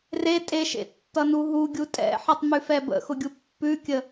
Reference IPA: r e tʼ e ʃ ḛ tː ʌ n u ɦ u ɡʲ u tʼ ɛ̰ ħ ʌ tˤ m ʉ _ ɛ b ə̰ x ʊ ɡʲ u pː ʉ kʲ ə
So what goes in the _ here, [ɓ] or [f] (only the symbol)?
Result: f